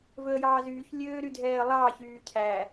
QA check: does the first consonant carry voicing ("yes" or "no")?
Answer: yes